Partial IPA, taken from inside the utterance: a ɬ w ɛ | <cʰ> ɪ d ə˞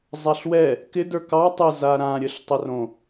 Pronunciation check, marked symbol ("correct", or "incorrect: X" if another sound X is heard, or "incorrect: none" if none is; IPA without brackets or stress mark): incorrect: k